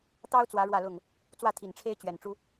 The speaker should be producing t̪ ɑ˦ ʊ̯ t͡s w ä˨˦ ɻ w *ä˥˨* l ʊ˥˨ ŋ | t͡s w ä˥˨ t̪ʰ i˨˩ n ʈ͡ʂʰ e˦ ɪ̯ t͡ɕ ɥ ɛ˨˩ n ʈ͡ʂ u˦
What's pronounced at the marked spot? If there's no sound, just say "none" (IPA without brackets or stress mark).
ä˥˨